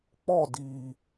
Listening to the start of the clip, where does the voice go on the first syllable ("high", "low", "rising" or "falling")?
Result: falling